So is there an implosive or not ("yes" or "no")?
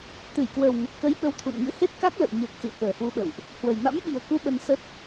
yes